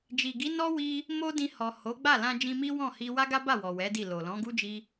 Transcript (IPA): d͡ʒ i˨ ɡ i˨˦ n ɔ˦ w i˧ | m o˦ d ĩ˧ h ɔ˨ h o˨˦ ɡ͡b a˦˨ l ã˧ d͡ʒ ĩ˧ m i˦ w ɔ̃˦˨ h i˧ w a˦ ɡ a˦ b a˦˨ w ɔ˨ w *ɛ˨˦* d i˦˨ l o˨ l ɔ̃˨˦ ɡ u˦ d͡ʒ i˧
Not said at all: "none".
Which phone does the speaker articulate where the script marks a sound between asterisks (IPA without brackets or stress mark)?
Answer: ɛ˨˦